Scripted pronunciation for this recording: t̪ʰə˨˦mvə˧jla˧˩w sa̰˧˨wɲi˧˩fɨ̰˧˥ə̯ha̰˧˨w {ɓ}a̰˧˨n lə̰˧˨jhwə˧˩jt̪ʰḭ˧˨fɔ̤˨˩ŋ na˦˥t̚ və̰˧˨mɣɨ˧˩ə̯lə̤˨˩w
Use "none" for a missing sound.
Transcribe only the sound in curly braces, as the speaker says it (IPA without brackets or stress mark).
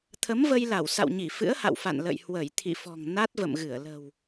f